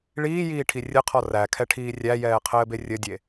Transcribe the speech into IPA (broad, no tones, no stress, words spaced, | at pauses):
ɭiːjiːʈʰi rʲɘqʰɔ rækʰɛʈʰiː rʲæjɛːqʰɘːbe rʲɘdʲe